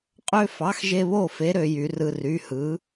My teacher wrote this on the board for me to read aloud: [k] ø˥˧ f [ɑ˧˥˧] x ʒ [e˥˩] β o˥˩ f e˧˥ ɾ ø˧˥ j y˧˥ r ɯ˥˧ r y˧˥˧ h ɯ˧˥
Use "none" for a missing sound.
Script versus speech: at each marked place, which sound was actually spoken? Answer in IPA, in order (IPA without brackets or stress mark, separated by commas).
qʼ, ɑ˧˥˧, e˥˧